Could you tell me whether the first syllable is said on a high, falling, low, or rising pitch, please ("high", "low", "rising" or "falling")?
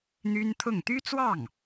high